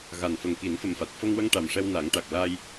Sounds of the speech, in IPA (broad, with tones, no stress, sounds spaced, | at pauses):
ɣ a˨˩ n f ə˨˩ ŋ k i˨˩˦ n f ə˨˩ m f a˨˩ t̚ f ə˧ ŋ w ə˧ ŋ ʈ a˨˩ m ʂ ɛ˧ w n a˨˩˦ ŋ ʈ a˨˩ k̚ l a˧ j